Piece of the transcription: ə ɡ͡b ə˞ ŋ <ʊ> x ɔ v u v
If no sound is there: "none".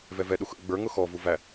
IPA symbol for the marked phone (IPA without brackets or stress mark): ʊ